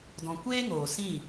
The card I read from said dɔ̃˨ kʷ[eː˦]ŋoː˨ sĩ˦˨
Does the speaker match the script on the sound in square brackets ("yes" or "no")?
yes